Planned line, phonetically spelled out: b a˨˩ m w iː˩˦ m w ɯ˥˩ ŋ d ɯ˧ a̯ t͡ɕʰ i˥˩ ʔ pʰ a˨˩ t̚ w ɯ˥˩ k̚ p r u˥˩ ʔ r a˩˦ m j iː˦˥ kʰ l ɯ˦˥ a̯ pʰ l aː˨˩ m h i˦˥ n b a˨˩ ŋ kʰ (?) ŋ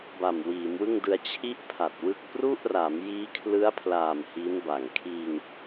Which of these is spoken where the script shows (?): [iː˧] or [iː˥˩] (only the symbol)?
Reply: iː˧